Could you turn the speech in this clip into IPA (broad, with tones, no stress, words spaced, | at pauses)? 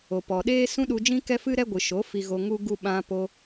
o˨pɔ˨ɗeː˦ sũ˦ɗu˧d͡ʒĩ˦ kɛ˦fɨ˦ɾɛ˦ ɡʷɨ˨ʃo˨˦ fi˧ɣo˧ ŋu˦ɡu˦ ɓã˧ po˧